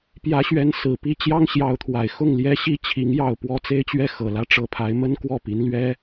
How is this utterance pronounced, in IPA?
p j ä˧˥ ɕ ɥ ɛ˧˥ n s ɹ̩˨˩ p i˥˩ t͡ɕ j ɑ˥ ŋ ɕ j ɑ˧˥ ʊ̯ t̪ʰ w a˨˩ ɪ̯ x ʊ˥˩ ŋ l j ɛ˧˥ ɕ i˧˥ t͡ɕʰ i˧˥ ŋ j ɑ˥˩ ʊ̯ p w ɔ˥ t͡s e˥ ɪ̯ t͡ɕ ɥ ɛ˥ x ɤ˨˩ l ä˥ ʈ͡ʂ ɤ˧˥ pʰ a˧˥ ɪ̯ m ə˥ n k w ɔ˥˩ p i˧˥ n l ɥ ɛ˥

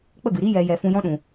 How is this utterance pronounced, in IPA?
k͡p ə˦˨ ɡ ɨ˨ ɾ i˧ j ɛ˨ j ɛ˨ f ũ˧ j ɔ̃˦ ɗ ũ˨

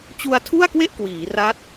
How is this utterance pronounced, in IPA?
t͡ɕ u˧ a̯ tʰ u˥˩ a̯ k w e˥˩ ʔ k w iː˩˦ r a˦˥ t̚

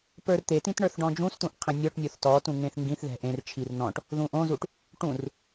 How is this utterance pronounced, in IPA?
p ə˞ r t̪ e t ĩ t ɳ ə˞ θ ɖ ɔ̃ d͡ʒ ũ s t̪ ũ ʔ qʰ ẽ nʲ ɔ ʈ nʲ o θ t ɔ t ũ ŋ ẽ θ ŋ ɡ ĩ θ ð ɛ̤ ʔ ẽ r t͡ʃʰ i r n ɔ̃ ʈ | ð ũ ʔ õ z u ʈ | ʈ ũ r

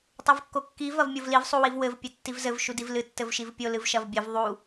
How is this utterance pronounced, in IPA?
tˤ o v kː o kː i v ɐ v mʲ o v l i v sˤ u w i v w ɘ v pʲ ɘ tː i v z ɘ v ʃ u d i v l ɨ tː ɘ v ʃ i v pʲ o l ɨ v ʃ ɐ v bʲ ɘ v ðˤ u

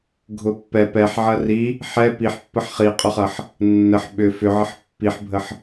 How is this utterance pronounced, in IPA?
ɡʱ ʊ pː ɛ p ɛ ħ ʕ ɐ r i | ħ ɛ p i ħ pː ə ħ χ i qʼ ʊ χ ɐ ħ | nː ə ħ ɓ ʏ f ʏ ʕ ə ħ pː i ħ bʱ ə ħ

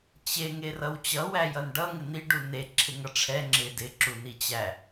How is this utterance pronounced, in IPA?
t͡ɕ e ŋ e r ʌ w t͡ɕ ʌ w æ j ʌ n ɖ ʌ ŋ ɪ n̪ i ɖ u n e ǁʰ ɪ ŋ ʌ ʈ͡ʂʰ ɛ ŋ͡ǁ ɪ d ɪ ǁ u n i t͡ɕ æ

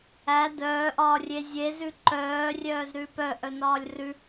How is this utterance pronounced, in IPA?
æ d̪ œː ʔ ɒː rʲ e zʲ e z ʉ ǃ œː rʲ œː z ɾ ʉ p œ ʔ œ n ɒː lʲ r ʉ

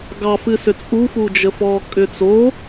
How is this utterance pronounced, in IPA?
ɡ ɑ f ɨ s ʏ t͡sʼ u f u d͡ʒ ə f ɔ kʼ ʏ t͡s o

